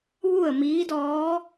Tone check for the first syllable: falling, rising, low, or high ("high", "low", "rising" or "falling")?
falling